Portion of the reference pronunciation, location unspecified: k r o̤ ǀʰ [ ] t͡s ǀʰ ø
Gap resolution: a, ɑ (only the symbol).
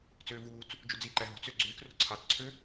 ɑ